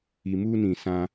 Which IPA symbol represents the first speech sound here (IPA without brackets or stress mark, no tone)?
i